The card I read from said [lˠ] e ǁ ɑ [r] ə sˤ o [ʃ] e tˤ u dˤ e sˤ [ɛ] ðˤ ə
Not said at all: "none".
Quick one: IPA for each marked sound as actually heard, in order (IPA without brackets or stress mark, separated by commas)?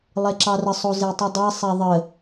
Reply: lˠ, r, z, ɛ